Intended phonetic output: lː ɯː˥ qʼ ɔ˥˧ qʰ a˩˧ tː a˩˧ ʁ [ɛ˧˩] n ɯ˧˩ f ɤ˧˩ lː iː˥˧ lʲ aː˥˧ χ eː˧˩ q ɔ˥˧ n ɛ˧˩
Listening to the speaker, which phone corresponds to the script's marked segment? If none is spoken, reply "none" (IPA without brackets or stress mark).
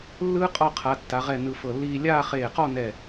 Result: ɛ˧˩